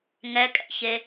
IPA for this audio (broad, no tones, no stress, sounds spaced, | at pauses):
ŋ ɛ kʼ ɛ̰ ç e